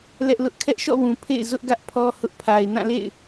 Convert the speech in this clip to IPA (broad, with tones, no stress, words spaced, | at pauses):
lɛ˦ʔlʊ˦ʔ kʰɛ˦ʔʃɔ̰˦˨wũ˨ pʰḛ˦˨ɪ̯ zʊ˦ʔ ɡä˦ʔpʰɔ˦ hʊ˦ʔ pʰa˨ɪ̯nã˦˨lḛ˦˨ɪ̯